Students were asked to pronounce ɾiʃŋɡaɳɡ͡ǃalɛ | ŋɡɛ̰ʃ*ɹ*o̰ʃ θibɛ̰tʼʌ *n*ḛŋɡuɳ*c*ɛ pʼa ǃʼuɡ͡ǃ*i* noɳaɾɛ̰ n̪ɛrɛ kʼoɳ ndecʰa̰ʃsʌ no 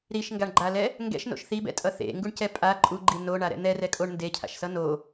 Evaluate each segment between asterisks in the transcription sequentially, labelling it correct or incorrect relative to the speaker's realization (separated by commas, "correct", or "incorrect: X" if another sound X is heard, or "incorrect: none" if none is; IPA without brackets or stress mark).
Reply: incorrect: n, incorrect: θ, correct, correct